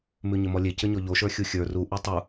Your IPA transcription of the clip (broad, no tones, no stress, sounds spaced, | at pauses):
m ʉ ɲ ɘ m ɔ lʲ e c ɘ ɲ ɔ ʎ o ʃ ə˞ xʲ u xʲ ə˞ r u ʔ ʉ tˤ u